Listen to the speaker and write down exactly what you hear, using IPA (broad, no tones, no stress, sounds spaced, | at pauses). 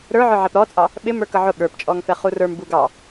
ɾ ə˞ ʕ ə˞ ʕ ɛ p ɾ ɔ t͡sʼ ɑ | ɓ ɪ m ə˞ k ʌ ʕ ʊ ɠ ə˞ p t͡ʃʼ ɔ ŋ f ɛ χ u r ə˞ m b u ɡ ɑ